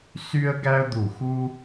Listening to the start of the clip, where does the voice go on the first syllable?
high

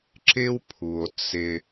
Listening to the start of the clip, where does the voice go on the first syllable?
high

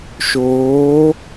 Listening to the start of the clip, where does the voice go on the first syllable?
rising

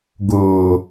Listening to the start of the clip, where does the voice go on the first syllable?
low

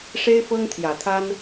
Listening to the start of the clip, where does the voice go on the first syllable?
high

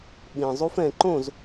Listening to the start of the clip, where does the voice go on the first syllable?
low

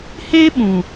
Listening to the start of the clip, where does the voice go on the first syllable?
high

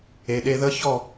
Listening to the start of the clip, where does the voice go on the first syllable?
low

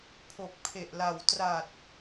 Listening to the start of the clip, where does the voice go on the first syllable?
low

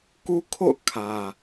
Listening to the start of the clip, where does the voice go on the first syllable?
high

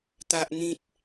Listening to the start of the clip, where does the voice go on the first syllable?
high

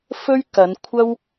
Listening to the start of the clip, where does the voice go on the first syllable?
high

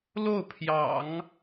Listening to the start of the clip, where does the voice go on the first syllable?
falling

